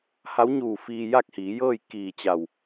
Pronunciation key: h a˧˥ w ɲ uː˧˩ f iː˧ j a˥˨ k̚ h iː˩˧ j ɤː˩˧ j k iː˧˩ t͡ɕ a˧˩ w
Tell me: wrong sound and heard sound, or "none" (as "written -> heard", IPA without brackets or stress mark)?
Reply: ɤː˩˧ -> ɤː˥˨